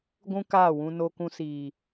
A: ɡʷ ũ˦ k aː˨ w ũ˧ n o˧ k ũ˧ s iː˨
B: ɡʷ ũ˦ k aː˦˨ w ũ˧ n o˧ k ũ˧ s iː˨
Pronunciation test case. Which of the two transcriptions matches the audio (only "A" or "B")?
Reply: B